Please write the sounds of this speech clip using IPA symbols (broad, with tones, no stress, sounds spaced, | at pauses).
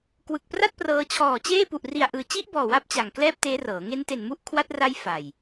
k w ɯ˨˩ k̚ p r a˥˩ t̚ p r ɤː˧ t͡ɕʰ ɔː˨˩ t͡ɕ eː˥˩ p u˨˩ ʔ r i˨˩ a̯ ʔ ɯː˨˩ t͡ɕ i˦˥ ʔ b ɔː˨˩ w a˦˥ p̚ t͡ɕ a˨˩ ŋ k l ɛː˥˩ p̚ t eː˦˥ r ɤː˩˦ ŋ e˦˥ n t e˨˩ n m u˦˥ ʔ kʰ w a˦˥ t̚ r a˦˥ j f a˨˩ j